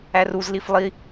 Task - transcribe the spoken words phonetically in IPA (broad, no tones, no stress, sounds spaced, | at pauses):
æ r u z l i f lˠ i